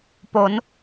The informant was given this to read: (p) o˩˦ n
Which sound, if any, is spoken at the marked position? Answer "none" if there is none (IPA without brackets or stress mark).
p